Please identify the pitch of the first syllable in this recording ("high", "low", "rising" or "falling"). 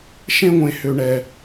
high